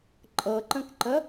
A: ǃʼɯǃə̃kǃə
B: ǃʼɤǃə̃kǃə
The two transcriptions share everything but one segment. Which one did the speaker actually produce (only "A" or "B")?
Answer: B